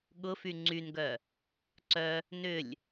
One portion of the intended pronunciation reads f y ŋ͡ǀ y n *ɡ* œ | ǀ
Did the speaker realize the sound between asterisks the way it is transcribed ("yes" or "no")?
yes